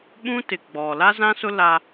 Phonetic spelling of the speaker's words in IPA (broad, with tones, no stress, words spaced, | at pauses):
ɓũ˦tɪ˨ ɡ͡bɔ˨ la˦zã˦sʊ˦ la˦